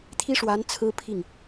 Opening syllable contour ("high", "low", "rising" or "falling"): high